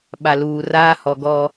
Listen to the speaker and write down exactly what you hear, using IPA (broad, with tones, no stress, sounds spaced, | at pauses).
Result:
ɓ a˨ l uː˨ r aː˦ h ɔ˨ ɡ ɔ˦